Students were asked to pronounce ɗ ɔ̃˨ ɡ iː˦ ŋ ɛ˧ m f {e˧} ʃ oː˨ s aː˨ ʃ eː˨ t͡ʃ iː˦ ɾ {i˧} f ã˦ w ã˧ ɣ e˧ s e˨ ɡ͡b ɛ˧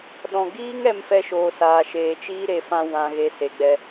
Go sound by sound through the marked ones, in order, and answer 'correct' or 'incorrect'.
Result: incorrect: ɛ˧, incorrect: e˧

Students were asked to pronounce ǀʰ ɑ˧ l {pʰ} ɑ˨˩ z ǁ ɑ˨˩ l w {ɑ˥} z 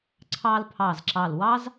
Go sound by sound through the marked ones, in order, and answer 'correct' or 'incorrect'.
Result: correct, correct

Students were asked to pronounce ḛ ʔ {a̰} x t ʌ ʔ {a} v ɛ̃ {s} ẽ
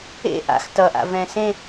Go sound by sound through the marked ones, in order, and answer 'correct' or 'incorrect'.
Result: correct, incorrect: a̰, correct

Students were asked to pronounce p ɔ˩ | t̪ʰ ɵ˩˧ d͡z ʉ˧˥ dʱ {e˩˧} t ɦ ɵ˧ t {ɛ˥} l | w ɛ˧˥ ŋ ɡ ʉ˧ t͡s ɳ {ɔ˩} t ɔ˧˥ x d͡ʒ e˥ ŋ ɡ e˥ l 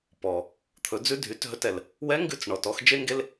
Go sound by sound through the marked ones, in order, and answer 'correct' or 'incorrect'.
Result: incorrect: y˩˧, incorrect: ɛ˩, correct

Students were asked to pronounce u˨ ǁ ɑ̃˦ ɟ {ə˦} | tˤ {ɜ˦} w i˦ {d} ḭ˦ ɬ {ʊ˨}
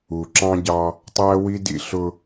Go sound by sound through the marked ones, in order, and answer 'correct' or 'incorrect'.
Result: incorrect: ɑ˦, incorrect: æ˦, correct, incorrect: ʊ˦

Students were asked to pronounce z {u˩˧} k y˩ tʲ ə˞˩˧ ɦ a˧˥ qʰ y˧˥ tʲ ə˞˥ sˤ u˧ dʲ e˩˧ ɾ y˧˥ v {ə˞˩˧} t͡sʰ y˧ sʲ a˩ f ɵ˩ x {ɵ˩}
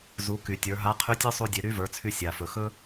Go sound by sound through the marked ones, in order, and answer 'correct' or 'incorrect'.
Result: correct, correct, incorrect: ɵ˥

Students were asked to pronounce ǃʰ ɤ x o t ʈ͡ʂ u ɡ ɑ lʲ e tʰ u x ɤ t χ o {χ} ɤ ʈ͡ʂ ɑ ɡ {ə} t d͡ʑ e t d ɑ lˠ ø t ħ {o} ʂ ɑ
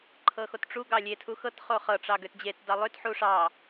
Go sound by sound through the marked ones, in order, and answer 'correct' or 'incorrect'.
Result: correct, incorrect: ø, incorrect: u

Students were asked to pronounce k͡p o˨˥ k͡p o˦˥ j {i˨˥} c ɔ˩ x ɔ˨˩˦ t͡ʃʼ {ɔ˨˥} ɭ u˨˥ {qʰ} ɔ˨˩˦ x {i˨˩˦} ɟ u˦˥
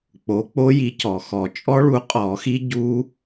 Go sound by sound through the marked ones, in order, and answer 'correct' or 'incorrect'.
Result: correct, incorrect: ɔ˦˥, incorrect: qʼ, incorrect: i˦˥

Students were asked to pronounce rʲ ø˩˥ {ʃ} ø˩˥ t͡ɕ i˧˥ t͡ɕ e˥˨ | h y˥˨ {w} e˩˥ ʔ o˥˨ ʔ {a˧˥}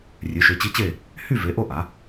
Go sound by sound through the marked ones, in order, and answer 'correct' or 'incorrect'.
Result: correct, incorrect: v, incorrect: a˩˥

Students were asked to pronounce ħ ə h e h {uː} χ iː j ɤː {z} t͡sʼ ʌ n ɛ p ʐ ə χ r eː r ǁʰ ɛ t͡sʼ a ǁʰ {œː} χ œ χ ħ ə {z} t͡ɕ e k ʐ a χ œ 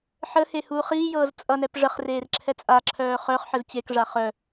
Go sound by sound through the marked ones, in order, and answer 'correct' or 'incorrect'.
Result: correct, correct, correct, correct

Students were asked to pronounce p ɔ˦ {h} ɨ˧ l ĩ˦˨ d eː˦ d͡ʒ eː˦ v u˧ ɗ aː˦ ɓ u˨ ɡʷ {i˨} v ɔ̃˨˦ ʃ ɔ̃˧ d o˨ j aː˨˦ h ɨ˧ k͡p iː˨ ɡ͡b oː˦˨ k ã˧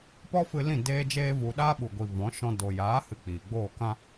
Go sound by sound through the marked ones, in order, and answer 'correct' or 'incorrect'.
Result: incorrect: f, correct

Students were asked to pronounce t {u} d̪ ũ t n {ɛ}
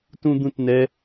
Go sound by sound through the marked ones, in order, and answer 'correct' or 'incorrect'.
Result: incorrect: ũ, correct

